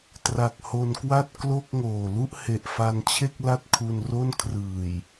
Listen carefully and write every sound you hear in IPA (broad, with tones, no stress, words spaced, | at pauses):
tra˨˩k̚ho˧nkwa˥˩t̚ klo˥˩k̚ŋoː˨˩ lu˥˩ʔhe˨˩ʔfa˧nt͡ɕʰe˥˩k̚ la˥˩t̚kʰu˧nro˥˩n kʰrɯː˨˩j